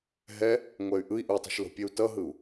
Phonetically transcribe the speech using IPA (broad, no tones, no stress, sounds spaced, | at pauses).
ɦ ɛ | ŋʷ ɛ y̯ ʔ ɯ i̯ ʔ u tˤ o̤ ʃ l o̤ pʲ e u̯ t ʌ ɦ ɯ u̯